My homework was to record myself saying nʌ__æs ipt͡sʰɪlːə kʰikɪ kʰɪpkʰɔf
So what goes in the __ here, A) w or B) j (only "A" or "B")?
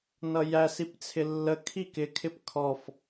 B